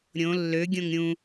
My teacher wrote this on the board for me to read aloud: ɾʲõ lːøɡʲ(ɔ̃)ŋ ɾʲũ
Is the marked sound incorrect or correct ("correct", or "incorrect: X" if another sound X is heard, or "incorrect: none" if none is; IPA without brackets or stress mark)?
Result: incorrect: õ